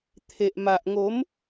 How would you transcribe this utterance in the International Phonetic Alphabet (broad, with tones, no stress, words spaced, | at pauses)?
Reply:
t̪ʰe˨ʔma˨ʔŋo˨˦m